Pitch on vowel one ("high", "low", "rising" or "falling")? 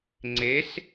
rising